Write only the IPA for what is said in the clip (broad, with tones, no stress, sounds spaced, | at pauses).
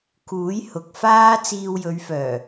k uː˨˥ j h ʊ˨ k̚ f aː˥ t͡s iː˧ w j ɵ˨˧ ɥ f œː˨˩